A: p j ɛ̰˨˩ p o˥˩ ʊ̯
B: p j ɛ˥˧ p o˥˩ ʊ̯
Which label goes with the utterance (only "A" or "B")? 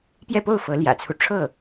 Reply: B